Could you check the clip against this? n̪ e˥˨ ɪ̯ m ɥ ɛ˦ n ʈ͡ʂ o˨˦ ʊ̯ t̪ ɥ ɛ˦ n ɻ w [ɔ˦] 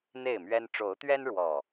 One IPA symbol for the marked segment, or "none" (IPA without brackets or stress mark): ɔ˨˩